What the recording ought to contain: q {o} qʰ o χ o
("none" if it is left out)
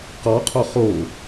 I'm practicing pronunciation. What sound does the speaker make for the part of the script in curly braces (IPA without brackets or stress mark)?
ɔ